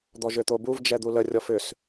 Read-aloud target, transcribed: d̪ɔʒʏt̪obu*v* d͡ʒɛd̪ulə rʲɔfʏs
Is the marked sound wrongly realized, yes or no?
no